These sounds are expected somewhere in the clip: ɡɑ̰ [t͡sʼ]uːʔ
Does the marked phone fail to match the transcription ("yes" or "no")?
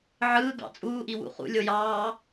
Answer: no